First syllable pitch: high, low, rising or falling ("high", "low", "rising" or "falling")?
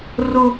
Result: high